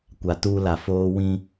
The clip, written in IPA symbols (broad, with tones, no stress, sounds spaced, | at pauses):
kʷ a˨ t uː˦ l a˨ f oː˦ w ĩ˦